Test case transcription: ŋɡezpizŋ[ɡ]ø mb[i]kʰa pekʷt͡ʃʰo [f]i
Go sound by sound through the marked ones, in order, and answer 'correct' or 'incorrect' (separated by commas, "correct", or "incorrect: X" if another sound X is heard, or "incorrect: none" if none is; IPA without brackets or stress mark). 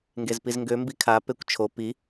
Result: correct, correct, incorrect: p